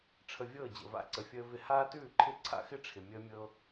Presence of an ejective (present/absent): absent